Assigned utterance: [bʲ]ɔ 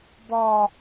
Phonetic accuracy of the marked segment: incorrect: b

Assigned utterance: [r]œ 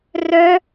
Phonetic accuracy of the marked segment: correct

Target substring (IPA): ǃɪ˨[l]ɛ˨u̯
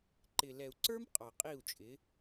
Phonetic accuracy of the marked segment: correct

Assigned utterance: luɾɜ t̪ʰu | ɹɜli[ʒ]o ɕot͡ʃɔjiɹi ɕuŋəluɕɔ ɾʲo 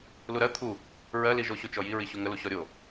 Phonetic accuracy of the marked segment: correct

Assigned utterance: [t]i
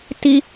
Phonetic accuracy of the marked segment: correct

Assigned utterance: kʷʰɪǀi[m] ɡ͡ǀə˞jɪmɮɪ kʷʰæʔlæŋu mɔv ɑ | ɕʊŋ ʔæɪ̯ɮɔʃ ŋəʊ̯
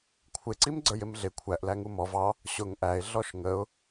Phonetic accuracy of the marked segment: correct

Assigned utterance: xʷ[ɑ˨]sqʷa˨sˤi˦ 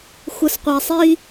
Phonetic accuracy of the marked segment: incorrect: ə˨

